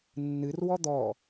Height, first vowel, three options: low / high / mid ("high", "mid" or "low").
high